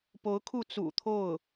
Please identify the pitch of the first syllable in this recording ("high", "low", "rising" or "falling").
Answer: rising